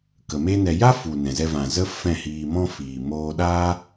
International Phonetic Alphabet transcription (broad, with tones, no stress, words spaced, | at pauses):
kə˨me˦nɛ˧ ja˦fu˨ nɛ̃˨zɛ˧vã˨ zə˦ fɛ̃˦˨hiː˧mɔ̃˦ fiː˨ moː˧ɗaː˦